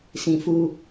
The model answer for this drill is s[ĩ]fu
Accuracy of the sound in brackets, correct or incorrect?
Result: correct